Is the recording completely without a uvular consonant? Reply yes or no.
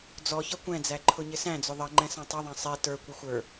yes